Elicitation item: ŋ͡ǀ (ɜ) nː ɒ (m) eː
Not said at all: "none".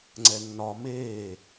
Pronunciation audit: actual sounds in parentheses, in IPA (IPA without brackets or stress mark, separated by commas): ɛ, m